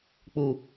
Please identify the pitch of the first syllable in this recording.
low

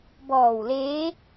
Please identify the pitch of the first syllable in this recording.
low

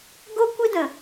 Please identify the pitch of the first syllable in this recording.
high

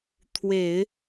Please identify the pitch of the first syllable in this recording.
low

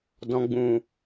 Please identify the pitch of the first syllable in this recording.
low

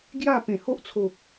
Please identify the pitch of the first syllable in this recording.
falling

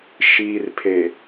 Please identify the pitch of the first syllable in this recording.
low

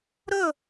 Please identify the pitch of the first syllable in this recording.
falling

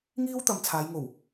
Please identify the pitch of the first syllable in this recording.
high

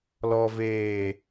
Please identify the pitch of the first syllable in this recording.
low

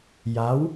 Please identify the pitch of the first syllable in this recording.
rising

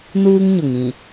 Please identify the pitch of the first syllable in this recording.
high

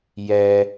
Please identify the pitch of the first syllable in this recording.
low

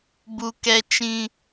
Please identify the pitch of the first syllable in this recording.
high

